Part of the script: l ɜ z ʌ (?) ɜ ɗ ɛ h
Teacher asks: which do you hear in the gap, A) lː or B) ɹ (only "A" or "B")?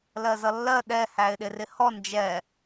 A